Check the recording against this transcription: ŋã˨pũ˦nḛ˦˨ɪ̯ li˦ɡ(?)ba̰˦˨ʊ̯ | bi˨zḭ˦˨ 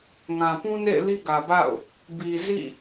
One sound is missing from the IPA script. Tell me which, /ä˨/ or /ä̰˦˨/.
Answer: ä˨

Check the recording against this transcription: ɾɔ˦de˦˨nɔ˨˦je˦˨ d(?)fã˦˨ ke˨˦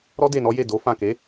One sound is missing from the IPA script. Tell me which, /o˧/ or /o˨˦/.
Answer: o˨˦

